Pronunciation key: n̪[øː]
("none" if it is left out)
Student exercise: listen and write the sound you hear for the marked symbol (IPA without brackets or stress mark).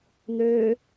øː